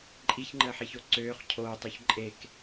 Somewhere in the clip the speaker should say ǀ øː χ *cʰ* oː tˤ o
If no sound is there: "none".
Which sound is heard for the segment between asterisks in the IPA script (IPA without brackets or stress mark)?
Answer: cʰ